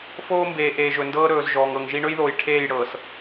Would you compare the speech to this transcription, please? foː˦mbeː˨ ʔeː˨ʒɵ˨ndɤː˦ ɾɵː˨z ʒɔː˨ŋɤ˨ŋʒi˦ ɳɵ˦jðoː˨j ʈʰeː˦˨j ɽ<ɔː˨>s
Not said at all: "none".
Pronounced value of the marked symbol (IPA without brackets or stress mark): ɤː˨